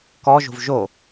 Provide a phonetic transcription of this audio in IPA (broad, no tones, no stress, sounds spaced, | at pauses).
k ɔ ʒ o̤ v ʒ o